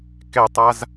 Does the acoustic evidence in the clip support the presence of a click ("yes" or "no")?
no